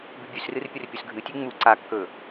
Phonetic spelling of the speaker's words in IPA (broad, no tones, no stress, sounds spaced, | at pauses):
b ʉ bʲ ʉ s r ɨ r pʲ ɵ r pʲ ɵ s ɡʱ ɨ tʲ ʉ ŋ͡m u ǀ a kː ɵ